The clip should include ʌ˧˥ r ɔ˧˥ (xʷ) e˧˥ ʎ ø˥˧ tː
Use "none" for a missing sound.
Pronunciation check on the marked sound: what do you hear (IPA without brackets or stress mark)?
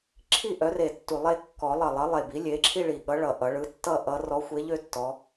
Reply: xʷ